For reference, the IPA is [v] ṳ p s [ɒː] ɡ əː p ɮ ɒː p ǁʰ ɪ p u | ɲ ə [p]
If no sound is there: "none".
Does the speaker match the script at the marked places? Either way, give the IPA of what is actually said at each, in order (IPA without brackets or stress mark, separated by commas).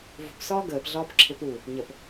v, ɒː, p